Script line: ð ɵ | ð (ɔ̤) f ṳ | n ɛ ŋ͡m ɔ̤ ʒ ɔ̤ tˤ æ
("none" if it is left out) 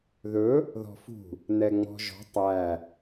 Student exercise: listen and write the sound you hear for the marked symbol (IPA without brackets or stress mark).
ɔ̤